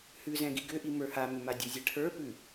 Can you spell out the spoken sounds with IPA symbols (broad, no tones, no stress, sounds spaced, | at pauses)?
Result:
h ʉ z ɛ̃ ɡ i ɡ ʏ ʔ i m ə˞ h a m ʏ m a dʲ ə˞ zʲ ɛ ʈʰ ə˞ p ʉ